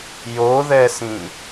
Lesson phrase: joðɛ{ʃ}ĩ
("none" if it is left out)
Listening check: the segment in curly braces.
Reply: s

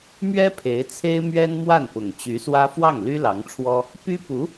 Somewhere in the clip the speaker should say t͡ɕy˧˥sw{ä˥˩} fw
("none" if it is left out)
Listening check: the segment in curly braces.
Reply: ä˥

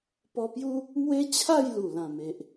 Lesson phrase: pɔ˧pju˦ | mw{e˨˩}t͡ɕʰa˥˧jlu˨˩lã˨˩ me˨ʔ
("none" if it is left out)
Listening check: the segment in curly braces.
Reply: e˦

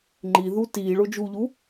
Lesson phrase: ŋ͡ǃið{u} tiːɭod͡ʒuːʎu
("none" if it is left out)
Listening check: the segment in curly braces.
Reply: u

